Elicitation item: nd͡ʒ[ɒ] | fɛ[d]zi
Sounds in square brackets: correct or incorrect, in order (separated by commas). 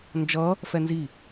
incorrect, incorrect